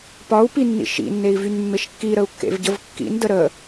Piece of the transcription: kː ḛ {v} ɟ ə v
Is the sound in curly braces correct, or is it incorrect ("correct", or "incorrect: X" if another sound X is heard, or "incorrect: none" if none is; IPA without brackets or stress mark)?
correct